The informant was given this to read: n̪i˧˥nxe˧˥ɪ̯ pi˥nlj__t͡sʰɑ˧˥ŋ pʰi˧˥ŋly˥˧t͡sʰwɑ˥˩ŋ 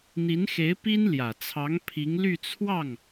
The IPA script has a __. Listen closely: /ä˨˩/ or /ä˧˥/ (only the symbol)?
ä˨˩